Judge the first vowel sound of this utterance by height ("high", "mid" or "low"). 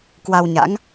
low